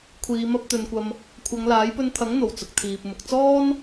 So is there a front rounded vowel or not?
no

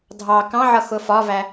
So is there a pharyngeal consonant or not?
yes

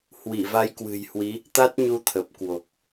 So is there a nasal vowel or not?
no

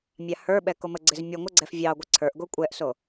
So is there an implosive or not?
yes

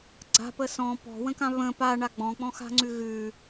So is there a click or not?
yes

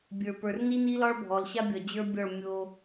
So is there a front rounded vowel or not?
no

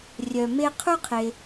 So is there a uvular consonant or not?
yes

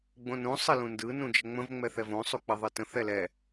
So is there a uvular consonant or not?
no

